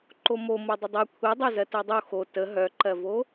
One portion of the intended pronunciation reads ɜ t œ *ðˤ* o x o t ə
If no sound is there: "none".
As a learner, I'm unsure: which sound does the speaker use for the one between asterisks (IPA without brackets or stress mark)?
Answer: dˤ